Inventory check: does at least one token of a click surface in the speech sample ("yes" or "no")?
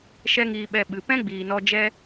no